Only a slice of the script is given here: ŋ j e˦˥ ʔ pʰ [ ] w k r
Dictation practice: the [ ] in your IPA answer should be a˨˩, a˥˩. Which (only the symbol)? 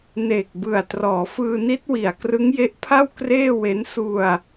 a˥˩